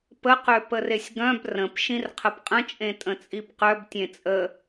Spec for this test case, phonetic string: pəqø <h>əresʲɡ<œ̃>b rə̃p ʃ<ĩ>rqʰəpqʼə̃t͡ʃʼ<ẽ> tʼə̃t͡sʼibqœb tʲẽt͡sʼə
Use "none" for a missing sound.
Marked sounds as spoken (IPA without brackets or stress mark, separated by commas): p, œ̃, ĩ, ẽ